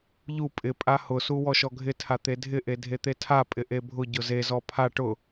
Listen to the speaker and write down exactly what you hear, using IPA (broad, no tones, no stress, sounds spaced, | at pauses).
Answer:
ʎ u pʼ ɪ pʼ a h ʊ s u w ɔ ʃ ɔ ɡʱ ɪ tʰ a t̪ e dʱ ɪ ʔ e dʱ e t̪ e tʰ a pʼ ɪ ʔ e bʱ ʊ ɟ ʊ z e z ɔ pʰ a ʈ ʊ